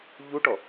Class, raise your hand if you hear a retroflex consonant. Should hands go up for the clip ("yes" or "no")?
yes